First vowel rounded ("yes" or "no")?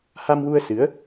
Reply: no